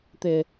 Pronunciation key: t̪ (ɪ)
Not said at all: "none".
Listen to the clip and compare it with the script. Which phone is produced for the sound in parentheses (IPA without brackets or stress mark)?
ɪ